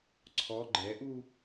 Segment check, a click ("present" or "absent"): present